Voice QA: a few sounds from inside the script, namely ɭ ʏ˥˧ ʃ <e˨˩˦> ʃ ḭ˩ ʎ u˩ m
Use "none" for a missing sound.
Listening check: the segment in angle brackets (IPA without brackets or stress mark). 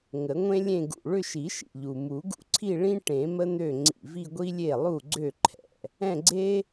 i˨˩˦